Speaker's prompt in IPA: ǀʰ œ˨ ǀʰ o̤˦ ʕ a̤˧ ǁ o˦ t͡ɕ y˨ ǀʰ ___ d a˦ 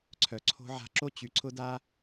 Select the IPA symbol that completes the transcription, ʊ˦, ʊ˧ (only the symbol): ʊ˦